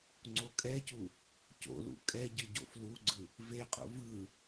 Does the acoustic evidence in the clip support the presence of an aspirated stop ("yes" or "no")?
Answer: no